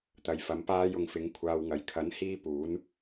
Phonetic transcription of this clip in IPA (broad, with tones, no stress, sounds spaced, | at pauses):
t̪ ɐ˨ j f ɐ˨˥ m p aː˥ j ʊ˨ ŋ f ɪ˨˥ ŋ kʷʰ aː˧ w ŋ ɐ˨ j kʰ ɐ˨˥ n h iː˥ p uː˨˥ n